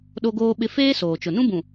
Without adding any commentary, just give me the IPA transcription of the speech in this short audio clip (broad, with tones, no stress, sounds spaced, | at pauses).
ɗ o˦ ɡ oː˦ ɓ ɪ˦ f eː˦ s oː˨ t͡ʃ ʊ˨ n ũ˦ b ũ˨